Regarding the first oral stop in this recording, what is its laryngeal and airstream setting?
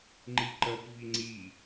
click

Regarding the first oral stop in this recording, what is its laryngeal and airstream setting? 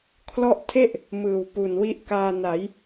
aspirated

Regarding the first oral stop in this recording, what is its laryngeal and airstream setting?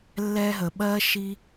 implosive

